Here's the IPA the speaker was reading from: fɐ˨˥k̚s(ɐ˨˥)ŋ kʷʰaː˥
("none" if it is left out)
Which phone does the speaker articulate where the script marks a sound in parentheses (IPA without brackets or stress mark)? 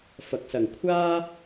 ɐ˨